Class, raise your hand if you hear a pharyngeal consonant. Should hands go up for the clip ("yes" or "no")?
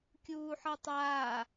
yes